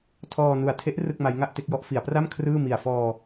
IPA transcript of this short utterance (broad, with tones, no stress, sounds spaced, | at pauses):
tʰ ɔː˧ n u˨˩ a̯ tʰ e˦˥ ʔ r ɯ˥˩ k̚ m a˦˥ j ŋ a˥˩ ʔ t e˦˥ k̚ j ɔ˦˥ ʔ f i˩˦ a̯ p r a˥˩ m kʰ r ɯː˥˩ m i˨˩ a̯ f ɔː˧